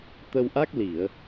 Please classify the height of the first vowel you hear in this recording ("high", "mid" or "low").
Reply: mid